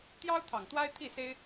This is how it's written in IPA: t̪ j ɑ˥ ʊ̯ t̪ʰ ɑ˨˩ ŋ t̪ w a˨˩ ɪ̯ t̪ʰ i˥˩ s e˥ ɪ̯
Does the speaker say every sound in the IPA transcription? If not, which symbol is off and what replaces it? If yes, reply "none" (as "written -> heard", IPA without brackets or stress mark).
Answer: a˨˩ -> a˥